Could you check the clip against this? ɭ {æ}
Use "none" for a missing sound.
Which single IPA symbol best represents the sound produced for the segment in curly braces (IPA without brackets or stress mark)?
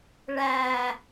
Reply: æ